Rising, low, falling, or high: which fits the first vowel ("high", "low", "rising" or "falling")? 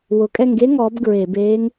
rising